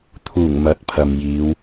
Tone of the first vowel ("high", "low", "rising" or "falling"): low